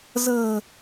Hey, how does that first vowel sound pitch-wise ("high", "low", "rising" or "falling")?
low